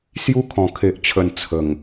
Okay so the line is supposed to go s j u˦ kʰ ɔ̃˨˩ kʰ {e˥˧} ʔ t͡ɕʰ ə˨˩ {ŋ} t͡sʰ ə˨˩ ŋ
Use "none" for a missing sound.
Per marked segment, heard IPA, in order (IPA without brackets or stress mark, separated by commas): e˨, n